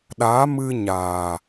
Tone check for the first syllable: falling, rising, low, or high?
rising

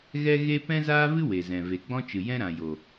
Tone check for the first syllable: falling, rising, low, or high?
high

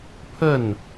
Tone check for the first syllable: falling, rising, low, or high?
falling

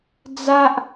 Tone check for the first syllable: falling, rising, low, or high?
high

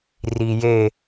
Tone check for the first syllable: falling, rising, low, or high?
low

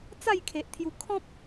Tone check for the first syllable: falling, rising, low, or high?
falling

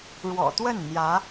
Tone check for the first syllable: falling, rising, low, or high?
low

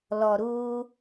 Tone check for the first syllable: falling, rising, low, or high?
low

